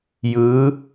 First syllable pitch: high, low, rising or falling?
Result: rising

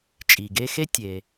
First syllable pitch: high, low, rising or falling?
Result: low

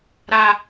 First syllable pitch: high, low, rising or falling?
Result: high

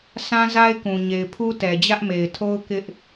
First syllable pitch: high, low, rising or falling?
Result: high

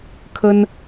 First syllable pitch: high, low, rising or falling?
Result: high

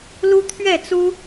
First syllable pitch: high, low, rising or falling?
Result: high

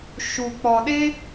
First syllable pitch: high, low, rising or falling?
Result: low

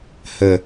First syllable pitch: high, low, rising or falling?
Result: low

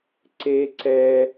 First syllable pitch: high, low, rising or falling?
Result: high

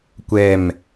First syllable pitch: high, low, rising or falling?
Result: falling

